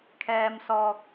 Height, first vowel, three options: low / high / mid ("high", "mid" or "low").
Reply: mid